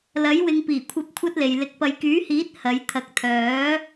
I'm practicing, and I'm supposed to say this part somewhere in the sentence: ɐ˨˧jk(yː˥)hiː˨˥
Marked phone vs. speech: incorrect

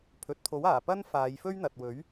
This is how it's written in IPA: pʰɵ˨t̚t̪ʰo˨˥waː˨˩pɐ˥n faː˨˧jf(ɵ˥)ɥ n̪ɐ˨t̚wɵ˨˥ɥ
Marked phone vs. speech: correct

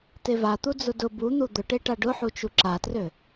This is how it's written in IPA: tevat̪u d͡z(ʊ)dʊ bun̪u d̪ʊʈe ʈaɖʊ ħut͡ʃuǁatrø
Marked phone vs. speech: correct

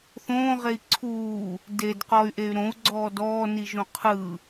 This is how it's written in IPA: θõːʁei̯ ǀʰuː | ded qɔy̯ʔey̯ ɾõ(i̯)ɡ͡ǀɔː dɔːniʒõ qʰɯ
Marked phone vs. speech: incorrect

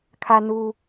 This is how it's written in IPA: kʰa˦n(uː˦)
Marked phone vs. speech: correct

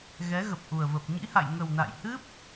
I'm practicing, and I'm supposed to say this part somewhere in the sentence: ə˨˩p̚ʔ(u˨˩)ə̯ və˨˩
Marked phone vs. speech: correct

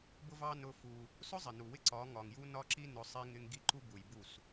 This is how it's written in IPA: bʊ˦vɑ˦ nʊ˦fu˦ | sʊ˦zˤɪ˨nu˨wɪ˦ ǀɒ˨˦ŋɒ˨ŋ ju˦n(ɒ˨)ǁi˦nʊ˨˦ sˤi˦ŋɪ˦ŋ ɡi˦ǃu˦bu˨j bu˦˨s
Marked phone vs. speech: incorrect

